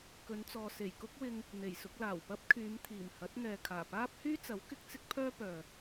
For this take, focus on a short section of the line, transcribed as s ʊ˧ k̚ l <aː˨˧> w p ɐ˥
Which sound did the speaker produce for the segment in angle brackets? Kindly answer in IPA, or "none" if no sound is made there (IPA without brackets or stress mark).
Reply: aː˨˩